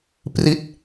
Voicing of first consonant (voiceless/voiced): voiceless